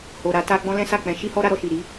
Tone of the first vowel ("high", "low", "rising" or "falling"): low